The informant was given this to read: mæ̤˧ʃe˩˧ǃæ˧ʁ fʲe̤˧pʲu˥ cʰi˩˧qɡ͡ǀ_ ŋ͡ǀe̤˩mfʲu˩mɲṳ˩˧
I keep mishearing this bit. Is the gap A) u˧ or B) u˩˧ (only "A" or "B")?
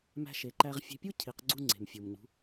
A